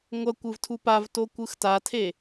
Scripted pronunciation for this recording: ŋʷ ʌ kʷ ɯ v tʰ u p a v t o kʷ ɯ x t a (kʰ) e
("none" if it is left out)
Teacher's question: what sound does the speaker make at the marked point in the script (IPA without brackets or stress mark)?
tʰ